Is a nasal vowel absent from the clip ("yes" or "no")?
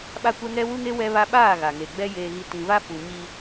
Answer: no